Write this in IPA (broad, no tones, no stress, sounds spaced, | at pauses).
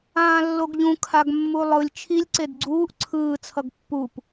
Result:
ãː lː o ɡ ʎ ũ kʰ a ɡ mː u lˠ ɯ lʲ t͡ʃʰ i lʲ ǀ e d ɡ͡ǀ uː ʔ ǀʰ ɯː t͡sʰ ʌ ɡ pː u p